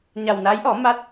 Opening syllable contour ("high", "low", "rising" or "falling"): low